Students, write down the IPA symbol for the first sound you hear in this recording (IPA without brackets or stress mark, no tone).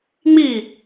ŋ͡m